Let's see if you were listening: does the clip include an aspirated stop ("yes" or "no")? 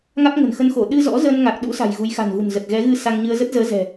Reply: no